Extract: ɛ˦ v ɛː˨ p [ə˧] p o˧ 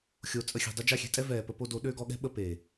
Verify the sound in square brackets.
correct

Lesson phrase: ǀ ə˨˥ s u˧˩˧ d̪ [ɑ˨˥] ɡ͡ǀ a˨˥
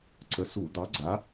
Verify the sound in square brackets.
correct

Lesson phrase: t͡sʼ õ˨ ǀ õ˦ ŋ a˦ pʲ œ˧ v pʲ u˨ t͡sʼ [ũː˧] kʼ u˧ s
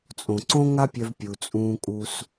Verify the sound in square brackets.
correct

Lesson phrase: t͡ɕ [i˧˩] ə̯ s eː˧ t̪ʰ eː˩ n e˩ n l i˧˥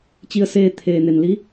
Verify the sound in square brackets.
incorrect: i˧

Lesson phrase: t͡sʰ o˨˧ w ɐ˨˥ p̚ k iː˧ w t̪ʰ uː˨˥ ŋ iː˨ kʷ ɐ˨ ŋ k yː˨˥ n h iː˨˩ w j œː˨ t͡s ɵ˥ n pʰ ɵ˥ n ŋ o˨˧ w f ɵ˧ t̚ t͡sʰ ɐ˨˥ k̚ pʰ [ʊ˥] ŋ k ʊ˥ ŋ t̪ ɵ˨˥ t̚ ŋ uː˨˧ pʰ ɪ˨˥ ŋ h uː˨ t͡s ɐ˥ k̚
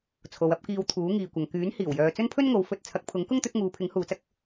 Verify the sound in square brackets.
incorrect: ʊ˨˥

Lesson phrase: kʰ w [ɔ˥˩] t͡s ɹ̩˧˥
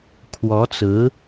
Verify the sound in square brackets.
incorrect: ɔ˧˥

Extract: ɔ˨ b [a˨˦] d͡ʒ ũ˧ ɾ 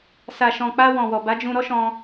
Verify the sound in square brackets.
correct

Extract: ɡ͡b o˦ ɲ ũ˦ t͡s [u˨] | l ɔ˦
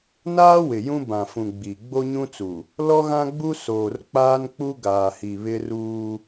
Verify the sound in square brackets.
correct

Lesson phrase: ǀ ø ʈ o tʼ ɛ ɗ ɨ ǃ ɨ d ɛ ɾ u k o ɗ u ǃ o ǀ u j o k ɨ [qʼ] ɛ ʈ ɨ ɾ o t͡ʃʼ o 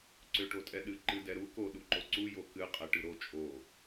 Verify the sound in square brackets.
correct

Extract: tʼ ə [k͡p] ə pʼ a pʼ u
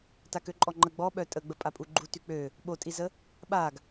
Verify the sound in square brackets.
incorrect: ɡ͡b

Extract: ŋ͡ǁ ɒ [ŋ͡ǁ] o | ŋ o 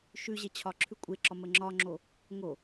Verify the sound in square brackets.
correct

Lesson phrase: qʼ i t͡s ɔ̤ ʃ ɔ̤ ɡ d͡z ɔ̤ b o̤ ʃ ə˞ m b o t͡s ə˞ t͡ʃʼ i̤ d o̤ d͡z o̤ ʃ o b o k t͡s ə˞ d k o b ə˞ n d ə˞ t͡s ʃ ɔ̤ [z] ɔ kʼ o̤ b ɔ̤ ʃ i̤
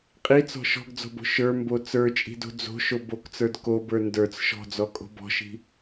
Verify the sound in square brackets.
incorrect: d͡z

